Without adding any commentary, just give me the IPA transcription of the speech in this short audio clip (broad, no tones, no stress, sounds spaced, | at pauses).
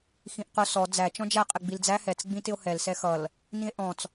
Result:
x ĩ ʔ q ʊ s ɔ d͡z æ t͡ʃ ɔ̃ d͡ʒ æ qʼ ɪ ɡ͡b i l d͡z æ h ɛ t͡s ɡ͡b ĩ t ɪ o̯ h ɛ l s ɛ x ʌ l | n ĩ e̯ ʔ ɔ̃ t͡s